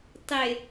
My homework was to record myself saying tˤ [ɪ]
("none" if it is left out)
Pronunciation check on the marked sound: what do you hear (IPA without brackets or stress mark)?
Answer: ɪ